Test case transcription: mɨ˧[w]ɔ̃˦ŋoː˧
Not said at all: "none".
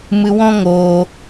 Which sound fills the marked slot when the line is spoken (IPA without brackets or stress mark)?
w